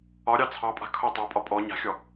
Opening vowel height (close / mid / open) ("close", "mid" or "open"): open